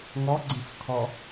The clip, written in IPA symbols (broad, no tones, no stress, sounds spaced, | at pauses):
ŋ ɔ ɡ͡ǀ ĩ f kʰ ɔ